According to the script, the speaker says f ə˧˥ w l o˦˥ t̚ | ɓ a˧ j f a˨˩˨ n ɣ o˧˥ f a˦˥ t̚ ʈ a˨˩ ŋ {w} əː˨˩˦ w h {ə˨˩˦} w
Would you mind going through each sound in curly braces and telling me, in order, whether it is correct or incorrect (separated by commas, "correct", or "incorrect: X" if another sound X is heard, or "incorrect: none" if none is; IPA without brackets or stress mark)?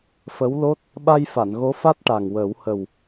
correct, incorrect: ə˨˩